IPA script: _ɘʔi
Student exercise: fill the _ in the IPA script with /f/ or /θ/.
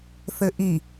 θ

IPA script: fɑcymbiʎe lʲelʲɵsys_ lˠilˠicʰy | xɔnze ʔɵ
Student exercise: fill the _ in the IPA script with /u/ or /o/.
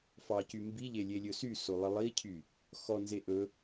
o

